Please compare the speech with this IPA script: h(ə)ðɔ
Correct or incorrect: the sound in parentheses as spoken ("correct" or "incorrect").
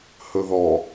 incorrect